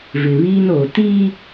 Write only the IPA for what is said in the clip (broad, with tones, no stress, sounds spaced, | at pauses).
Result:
v ɪ˨ β iː˦ n oː˨ t iː˦